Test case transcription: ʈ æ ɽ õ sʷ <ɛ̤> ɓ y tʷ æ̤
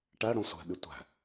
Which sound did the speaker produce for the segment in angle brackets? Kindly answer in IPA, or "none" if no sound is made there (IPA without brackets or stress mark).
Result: ɛ̤